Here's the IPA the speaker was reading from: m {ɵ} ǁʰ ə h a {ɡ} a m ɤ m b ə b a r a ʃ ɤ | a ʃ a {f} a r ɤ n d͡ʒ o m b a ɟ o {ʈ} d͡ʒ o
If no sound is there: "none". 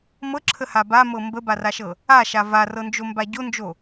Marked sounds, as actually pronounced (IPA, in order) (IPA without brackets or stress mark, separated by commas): ɤ, b, v, n